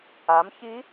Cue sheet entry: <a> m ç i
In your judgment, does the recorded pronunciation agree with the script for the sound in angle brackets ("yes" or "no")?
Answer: yes